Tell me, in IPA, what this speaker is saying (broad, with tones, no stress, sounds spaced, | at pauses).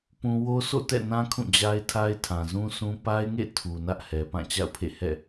p ũ˦ w o˦ sʰ o̰˦˨ t ɛ̰˦˨ n ã˦ kʰ ũ˦˨ d͡ʑ a˦ ɪ̯ tʰ a˦ ɪ̯ tʰ ã˨ z ũ˦ s ũ˦ p a˦ ɪ̯ ŋ ḛ˦˨ tʰ u˨ n ä˦ ʔ h ɛ˨ p ã˦˨ t͡ɕ a̰˦˨ ʊ̯ pʰ ḛ˦˨ h ɛ̰˦˨